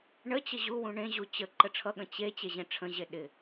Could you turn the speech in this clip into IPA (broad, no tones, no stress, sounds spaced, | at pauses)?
ɳ ə t͡ɕ ə ʑ u w ũ ɳ ẽ ʑ u t͡ɕ ə ǃ ə ʈ͡ʂʰ ʌ ɠ ə̃ t͡ɕ e t͡ɕ e ʑ ẽ ʈ͡ʂʰ ə̃ ʑ e ɗ ɪ